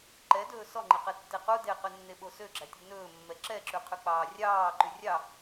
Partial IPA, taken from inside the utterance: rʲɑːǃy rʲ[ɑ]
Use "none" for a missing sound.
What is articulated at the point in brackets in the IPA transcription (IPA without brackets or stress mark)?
ɑ